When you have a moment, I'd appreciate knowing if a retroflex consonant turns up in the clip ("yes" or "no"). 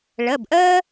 yes